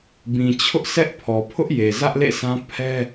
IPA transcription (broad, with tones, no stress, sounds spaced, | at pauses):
b ĩ˨ t͡ɕʰ ʊ˦ ʔ sʰ ɛ˦ ʔ pʰ ɔ˨ pʰ ʊ˦ ʔ j e˨ z ä˦ ʔ l ḛ˦˨ s ã˦ pʰ ɛ˦